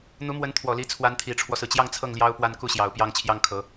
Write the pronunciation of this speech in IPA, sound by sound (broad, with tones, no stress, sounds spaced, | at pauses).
n̪ u˧˥ m w ə˧˥ n t̪ʰ w ɔ˨˩ l i˧˥ t͡sʰ w a˧˥ n t̪ʰ i˨˩ ʈ͡ʂʰ w ɔ˦ s ɹ̩˩ t͡ɕ j ɑ˥˧ ŋ t͡sʰ ɤ˥˩ ŋ l j ɑ˥ ʊ̯ p w a˥˧ n k u˥˩ ɕ j ɑ˨˩ ʊ̯ p j ɑ˥˩ ŋ t͡ɕʰ j ɑ˥ ŋ kʰ ɤ˧˥